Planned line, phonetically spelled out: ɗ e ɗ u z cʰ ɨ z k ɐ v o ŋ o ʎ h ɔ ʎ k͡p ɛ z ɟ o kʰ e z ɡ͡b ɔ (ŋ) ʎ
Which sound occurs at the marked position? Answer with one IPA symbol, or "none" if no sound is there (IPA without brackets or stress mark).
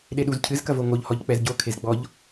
none